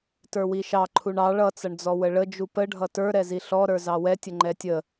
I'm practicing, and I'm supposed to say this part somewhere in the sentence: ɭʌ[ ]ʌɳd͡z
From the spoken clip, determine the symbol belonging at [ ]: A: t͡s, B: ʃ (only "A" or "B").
A